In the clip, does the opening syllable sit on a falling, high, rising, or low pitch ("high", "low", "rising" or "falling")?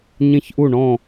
falling